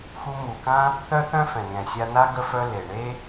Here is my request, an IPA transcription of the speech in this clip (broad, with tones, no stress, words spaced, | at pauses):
xu˧mu˩kã˥ | θœ˥θœ̃˥fɛ̃˩ŋɛ̃˩ sʲa˧na˥ ɡə˥fœ˥ le˩ɳe˥